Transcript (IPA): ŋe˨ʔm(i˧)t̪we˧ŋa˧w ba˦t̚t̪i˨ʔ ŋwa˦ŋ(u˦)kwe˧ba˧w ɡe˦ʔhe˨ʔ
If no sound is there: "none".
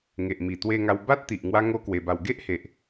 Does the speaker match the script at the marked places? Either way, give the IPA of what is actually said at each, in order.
i˨˩, o˦

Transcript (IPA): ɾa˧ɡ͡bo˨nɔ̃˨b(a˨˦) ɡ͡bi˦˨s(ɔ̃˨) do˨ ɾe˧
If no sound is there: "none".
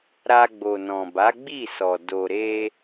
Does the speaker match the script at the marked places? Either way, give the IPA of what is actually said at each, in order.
a˨˦, ɔ˨

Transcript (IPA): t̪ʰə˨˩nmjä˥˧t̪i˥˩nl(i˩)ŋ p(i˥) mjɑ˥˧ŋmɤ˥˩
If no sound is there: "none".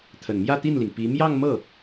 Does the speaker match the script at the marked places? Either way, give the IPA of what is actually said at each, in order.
i˩, i˧˥

